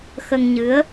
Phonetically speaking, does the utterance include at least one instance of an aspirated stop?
no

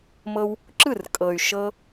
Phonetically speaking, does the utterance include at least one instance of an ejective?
yes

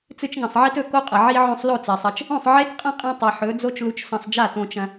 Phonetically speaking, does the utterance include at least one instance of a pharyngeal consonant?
yes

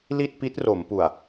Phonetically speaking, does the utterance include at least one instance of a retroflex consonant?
no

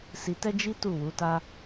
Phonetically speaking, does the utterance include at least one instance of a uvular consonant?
no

